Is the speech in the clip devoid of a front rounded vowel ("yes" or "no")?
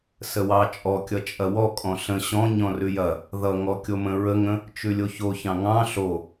yes